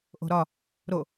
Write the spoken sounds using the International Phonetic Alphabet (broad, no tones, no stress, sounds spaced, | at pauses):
ʔ o̤ ɾ ɒ | ɾ o